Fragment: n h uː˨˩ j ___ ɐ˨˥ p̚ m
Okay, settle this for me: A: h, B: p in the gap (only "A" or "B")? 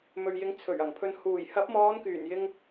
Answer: A